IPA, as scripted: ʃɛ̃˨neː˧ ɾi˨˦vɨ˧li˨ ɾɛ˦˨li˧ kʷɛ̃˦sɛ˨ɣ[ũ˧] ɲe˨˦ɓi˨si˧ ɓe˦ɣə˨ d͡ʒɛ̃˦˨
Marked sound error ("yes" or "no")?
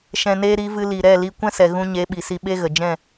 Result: no